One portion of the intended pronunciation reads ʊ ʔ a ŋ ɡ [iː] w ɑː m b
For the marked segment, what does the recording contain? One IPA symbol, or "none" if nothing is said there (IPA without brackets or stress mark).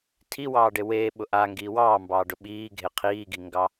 iː